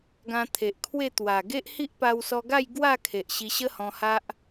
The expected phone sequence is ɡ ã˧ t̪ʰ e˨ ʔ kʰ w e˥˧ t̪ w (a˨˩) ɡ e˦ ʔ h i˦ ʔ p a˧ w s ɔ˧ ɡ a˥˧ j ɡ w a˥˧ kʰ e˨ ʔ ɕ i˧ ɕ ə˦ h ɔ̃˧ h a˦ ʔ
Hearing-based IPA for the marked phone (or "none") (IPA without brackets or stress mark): a˨˩